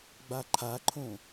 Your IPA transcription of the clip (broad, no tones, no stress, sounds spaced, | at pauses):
ɡ͡b a ǃʰ a ǃʰ õ